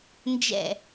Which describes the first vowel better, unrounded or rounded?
unrounded